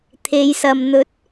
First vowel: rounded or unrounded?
unrounded